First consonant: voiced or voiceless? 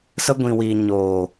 voiceless